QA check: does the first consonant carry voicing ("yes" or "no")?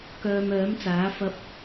no